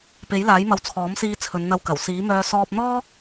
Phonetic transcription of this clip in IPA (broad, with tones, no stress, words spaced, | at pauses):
pe˨˥jlaː˨˥jmɐ˨˧w t͡sʰɔː˨˥msiː˧ t͡sʰɵ˨˧nn̪ɐ˧wkɐ˨˩w siː˨˥mœː˧ sɔː˧p̚n̪ɔː˥k̚